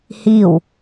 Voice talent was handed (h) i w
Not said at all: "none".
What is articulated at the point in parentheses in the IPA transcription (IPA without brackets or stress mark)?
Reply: h